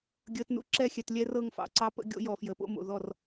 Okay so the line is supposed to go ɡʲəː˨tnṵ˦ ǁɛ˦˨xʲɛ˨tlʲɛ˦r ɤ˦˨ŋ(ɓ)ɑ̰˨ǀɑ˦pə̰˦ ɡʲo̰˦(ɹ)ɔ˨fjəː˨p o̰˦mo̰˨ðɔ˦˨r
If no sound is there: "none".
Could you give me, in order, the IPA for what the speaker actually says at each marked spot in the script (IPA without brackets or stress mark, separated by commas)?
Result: f, j